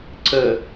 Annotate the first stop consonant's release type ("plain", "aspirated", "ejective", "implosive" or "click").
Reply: click